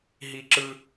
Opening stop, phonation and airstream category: click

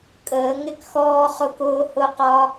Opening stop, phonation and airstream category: ejective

